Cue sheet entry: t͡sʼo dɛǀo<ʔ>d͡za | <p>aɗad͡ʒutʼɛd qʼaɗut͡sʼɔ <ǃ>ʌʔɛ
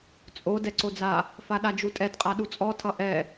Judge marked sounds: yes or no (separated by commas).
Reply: no, no, no